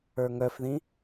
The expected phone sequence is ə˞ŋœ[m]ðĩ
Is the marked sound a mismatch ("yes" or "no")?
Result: yes